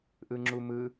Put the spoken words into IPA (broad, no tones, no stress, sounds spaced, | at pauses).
ʔ ɯ ŋ͡ǁ u m ɯ